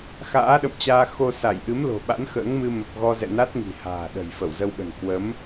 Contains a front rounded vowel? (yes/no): no